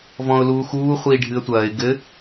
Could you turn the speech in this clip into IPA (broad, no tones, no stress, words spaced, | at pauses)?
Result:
vɔ̃ʊ̯luːxuː χʷiːɖʱɨə̯tʷɐːɪ̯ ɡɘ